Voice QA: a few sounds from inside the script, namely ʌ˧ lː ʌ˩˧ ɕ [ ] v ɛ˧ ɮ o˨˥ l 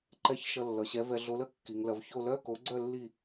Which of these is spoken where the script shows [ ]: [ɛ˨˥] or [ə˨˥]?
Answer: ɛ˨˥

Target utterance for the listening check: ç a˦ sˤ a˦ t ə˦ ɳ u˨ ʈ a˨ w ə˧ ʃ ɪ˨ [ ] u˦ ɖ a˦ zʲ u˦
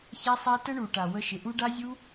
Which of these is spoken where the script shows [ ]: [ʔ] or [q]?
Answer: ʔ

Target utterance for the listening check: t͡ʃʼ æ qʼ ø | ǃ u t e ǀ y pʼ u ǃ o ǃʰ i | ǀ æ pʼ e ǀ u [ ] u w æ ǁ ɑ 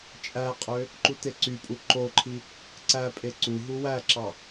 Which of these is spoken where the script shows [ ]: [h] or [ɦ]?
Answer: ɦ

